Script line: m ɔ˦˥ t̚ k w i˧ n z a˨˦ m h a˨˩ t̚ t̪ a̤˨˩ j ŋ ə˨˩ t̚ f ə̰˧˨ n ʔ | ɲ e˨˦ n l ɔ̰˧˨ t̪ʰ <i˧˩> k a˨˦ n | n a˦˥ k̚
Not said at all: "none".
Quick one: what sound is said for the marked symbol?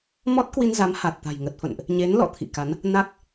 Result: ḭ˧˨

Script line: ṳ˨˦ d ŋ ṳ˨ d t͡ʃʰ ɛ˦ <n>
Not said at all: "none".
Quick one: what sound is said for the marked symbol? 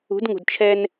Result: n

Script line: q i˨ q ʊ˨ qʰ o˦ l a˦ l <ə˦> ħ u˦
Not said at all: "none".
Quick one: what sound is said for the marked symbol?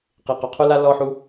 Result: ɔ˦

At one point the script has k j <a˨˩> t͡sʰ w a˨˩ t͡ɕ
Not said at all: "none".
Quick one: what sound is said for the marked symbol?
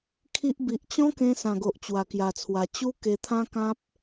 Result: a˨˩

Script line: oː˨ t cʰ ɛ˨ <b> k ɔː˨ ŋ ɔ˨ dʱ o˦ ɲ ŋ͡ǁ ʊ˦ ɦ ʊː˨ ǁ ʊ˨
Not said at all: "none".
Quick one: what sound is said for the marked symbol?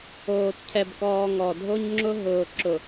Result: b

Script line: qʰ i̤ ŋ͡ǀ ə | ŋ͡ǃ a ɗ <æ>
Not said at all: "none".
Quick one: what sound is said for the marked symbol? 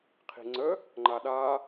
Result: a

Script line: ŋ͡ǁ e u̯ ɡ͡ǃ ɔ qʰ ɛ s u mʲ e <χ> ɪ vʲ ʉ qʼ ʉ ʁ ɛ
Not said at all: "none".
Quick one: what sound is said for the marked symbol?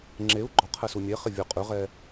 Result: χ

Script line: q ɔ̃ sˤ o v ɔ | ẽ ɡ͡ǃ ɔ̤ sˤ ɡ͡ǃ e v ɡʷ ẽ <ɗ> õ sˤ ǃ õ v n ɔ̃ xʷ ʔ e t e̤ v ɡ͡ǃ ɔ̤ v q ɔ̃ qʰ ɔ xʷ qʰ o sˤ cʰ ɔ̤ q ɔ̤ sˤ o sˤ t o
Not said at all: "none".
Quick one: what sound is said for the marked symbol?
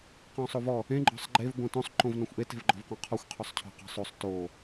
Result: t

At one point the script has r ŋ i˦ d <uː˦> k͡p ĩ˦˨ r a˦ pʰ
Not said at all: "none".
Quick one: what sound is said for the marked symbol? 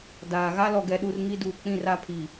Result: uː˨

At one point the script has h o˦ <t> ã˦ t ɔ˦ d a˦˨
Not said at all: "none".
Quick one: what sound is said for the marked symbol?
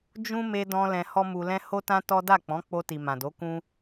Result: t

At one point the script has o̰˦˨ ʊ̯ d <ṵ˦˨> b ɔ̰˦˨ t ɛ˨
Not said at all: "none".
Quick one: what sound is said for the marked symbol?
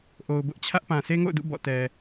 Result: ṵ˦˨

